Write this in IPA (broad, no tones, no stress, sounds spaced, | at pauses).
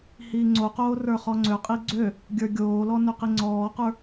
h iː ŋ͡ǀ o q oː r ə˞ χ ɔ ŋ͡ǀ ø qʼ i ɡ͡ǀ ø | ɡʲ ə˞ ɡʲ oː l ɔ n ø q i ŋ͡ǀ ɔː q ə˞